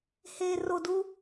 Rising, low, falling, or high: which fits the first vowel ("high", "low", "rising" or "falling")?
low